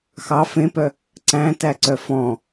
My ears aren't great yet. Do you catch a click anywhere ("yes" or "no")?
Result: yes